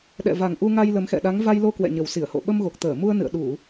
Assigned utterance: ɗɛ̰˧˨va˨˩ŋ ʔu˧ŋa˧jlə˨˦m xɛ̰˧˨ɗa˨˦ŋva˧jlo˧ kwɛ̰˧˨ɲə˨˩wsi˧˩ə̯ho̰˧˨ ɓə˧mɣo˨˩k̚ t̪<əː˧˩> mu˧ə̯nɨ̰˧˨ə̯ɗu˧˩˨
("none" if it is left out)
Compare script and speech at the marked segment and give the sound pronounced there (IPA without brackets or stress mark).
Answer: əː˧˩